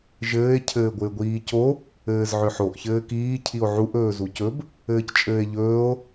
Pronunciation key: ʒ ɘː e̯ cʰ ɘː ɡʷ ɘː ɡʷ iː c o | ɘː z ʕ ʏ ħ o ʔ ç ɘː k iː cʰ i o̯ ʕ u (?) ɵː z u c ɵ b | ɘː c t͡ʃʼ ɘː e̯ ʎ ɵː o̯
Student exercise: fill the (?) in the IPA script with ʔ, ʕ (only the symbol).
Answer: ʔ